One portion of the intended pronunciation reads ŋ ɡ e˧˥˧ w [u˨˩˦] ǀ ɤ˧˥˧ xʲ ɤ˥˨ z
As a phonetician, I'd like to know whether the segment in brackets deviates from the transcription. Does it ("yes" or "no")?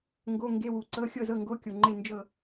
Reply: no